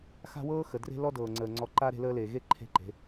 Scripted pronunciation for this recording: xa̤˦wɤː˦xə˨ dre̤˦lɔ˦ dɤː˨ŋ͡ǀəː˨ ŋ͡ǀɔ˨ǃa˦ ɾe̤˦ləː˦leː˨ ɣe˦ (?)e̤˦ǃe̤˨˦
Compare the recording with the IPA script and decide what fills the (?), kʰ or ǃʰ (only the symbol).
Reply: ǃʰ